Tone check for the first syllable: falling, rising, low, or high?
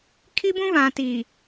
high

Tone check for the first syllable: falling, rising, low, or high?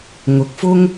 low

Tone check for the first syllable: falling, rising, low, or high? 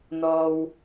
low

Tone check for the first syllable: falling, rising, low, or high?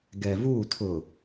low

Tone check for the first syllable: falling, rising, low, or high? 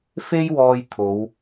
high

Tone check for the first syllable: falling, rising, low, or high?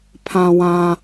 low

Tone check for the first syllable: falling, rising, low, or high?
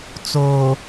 low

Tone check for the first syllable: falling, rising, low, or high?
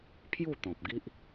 falling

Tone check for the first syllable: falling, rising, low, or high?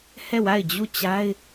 falling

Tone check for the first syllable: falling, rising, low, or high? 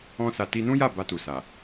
high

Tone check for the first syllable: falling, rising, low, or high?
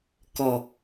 low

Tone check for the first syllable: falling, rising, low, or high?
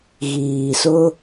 low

